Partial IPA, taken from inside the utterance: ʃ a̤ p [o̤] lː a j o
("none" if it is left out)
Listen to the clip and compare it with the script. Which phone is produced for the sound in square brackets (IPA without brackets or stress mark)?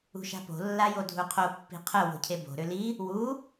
o̤